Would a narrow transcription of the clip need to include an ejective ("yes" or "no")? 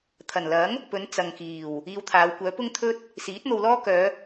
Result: no